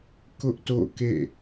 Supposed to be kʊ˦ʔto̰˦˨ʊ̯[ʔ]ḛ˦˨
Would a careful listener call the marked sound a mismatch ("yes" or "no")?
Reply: yes